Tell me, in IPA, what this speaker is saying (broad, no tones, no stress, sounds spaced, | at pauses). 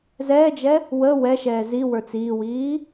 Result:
z ɛː d͡ʒ ɛ | w ə w ɛ ʃ ɛː z i w ə˞ t͡s iː w iː